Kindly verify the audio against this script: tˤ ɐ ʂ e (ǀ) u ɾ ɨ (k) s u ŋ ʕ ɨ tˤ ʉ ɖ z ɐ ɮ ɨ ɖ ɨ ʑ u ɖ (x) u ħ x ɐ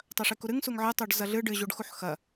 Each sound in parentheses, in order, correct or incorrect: incorrect: k, incorrect: ŋ, correct

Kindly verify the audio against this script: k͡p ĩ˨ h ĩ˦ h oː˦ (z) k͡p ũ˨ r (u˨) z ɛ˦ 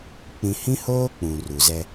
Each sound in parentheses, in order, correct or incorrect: incorrect: none, correct

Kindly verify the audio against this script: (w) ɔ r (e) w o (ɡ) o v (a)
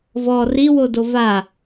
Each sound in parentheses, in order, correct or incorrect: incorrect: v, incorrect: i, incorrect: d, correct

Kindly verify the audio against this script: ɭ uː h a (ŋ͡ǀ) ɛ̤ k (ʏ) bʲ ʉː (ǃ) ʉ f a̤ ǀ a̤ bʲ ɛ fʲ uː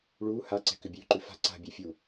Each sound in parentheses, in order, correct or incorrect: incorrect: ǀ, correct, correct

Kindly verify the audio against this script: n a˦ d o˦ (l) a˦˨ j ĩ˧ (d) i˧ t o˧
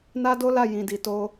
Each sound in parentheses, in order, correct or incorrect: correct, correct

